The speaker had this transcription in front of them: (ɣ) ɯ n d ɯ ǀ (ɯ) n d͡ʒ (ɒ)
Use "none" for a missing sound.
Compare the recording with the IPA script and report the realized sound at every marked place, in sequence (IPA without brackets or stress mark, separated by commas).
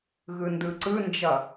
ɣ, ɯ, ʌ